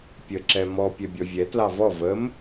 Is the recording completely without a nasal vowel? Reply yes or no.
yes